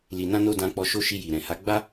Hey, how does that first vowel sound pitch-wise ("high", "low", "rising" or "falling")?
low